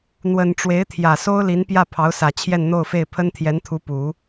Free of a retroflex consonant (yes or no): no